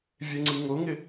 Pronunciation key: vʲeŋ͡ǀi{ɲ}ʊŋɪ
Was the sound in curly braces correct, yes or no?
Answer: no